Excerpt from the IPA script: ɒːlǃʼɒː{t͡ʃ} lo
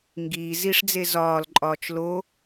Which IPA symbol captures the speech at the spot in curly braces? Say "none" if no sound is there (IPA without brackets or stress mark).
t͡ʃ